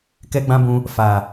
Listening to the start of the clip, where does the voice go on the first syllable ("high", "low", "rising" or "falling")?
high